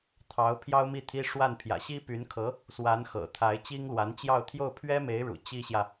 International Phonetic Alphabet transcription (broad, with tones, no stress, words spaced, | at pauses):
t̪ʰɑ˧˥ʊ̯ pʰjɑ˥ʊ̯mi˥˩t̪ʰi˥ ʂwa˥˩n pʰjä̰˨˩ɕi˥py˧˥nkʰɤ˧˥ | swa˧˥nxɤ̰˨˩t̪ʰa˧˥ɪ̯ t͡ɕi˥ŋlwa˧˥nt͡ɕjɑ˥˧ʊ̯ t̪ʰjo˥˩ʊ̯pʰɥɛ˥me˧˥ɪ̯ ɻṵ˨˩ t͡ɕi˥ɕjä˨